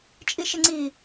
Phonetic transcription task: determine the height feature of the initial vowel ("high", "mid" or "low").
high